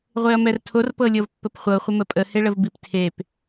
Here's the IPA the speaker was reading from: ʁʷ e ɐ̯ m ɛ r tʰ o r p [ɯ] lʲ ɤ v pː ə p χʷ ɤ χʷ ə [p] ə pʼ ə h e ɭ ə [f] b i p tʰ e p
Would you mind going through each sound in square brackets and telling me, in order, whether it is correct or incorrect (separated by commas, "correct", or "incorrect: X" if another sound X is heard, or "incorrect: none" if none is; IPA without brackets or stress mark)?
incorrect: ɤ, incorrect: m, incorrect: v